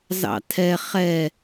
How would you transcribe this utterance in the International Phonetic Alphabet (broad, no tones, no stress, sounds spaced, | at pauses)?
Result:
z ɑ̰ tʰ ɛ χ ɛ